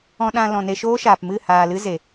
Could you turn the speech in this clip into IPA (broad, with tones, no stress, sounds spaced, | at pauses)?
ɔ̃˧ ɗ ã˧ l ɔ̃˨ n e˧ ʃ oː˦ ʃ aː˨ p m ɨ˦˨ h aː˨ l ɨ˦ z e˨